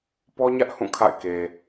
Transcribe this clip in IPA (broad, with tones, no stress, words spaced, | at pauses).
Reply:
pɔ˦ɲä˦ʔ hũ˦˨kʰa̰˦˨ɪ̯ke˨